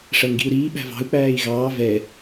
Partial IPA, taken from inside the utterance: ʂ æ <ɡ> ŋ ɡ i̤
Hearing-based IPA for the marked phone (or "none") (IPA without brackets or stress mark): none